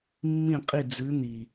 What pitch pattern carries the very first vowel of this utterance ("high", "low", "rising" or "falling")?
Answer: falling